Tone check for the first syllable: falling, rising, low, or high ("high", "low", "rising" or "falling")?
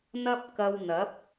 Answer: high